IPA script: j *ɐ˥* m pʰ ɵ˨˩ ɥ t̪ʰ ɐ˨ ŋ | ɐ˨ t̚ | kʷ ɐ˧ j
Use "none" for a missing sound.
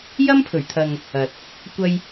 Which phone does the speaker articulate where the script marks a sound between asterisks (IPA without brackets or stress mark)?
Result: ɐ˥